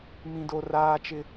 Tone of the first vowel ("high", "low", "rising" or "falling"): high